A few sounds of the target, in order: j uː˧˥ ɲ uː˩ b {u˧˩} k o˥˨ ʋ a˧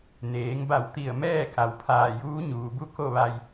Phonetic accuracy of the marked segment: incorrect: u˥˨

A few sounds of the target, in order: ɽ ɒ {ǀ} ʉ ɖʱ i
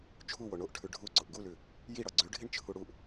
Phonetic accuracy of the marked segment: incorrect: ɡ͡ǀ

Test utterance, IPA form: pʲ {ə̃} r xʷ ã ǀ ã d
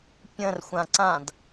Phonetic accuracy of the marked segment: correct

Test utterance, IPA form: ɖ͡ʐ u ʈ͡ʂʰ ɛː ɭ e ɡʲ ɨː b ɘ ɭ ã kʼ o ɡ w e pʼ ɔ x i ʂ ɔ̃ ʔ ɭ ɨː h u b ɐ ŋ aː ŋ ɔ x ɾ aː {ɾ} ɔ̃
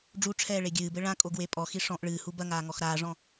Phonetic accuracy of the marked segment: incorrect: ʐ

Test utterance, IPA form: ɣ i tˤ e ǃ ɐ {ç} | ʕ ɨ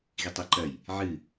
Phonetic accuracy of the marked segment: incorrect: j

